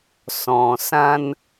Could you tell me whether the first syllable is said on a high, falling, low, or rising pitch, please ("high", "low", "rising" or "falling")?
low